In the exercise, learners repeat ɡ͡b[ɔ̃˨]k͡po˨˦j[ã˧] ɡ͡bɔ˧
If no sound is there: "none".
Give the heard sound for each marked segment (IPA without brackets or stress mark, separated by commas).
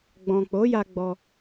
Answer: ɔ̃˨, a˧